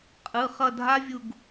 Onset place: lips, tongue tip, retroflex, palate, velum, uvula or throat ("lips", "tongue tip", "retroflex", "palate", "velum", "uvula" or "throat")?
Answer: uvula